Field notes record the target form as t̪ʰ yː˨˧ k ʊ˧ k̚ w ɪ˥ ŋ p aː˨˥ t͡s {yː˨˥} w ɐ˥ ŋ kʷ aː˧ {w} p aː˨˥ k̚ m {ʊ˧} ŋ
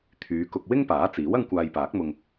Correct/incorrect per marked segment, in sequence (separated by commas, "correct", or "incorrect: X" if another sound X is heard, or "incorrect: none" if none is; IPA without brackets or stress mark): incorrect: iː˨˥, incorrect: j, correct